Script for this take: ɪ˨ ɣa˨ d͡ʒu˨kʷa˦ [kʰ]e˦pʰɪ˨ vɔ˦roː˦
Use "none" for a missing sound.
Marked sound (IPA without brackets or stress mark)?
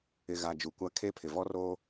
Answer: kʰ